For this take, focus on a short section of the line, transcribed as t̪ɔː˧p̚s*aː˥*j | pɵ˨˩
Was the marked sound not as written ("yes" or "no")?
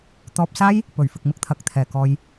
no